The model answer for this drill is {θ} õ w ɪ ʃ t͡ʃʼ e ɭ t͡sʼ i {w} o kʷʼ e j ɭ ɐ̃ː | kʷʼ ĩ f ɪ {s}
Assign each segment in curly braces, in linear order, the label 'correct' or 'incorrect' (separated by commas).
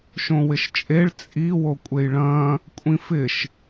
incorrect, correct, incorrect